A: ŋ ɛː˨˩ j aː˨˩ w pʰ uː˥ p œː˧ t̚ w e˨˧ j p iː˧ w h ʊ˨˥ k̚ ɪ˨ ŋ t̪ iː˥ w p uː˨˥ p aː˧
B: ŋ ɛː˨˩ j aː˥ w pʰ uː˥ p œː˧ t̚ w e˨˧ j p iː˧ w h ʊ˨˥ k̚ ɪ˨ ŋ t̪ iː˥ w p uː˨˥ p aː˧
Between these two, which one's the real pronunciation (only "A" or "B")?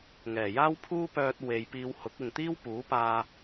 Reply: B